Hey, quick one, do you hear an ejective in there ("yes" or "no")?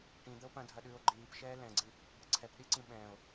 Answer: no